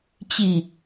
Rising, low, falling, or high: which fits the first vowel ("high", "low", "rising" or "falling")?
falling